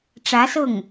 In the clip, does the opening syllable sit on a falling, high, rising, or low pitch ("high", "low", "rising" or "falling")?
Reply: rising